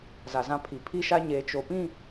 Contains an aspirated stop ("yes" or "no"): yes